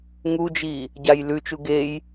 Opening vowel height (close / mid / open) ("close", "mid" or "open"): close